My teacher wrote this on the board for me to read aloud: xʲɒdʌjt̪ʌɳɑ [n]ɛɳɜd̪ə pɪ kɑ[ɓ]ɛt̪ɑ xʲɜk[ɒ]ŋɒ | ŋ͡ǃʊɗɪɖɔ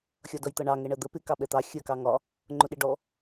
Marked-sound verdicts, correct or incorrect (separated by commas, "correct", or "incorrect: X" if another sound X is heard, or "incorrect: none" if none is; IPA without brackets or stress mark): incorrect: ŋ, correct, incorrect: ɑ